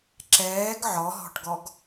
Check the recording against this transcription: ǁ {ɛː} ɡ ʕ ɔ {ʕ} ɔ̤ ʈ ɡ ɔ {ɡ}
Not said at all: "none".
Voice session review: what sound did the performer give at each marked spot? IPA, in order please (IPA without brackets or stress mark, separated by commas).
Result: ɛː, ɦ, ɡ